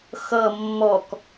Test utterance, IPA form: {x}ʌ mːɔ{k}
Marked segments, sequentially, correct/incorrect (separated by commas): correct, correct